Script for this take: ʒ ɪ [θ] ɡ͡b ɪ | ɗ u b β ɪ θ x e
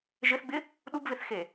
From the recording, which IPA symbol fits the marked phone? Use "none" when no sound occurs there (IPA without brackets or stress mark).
θ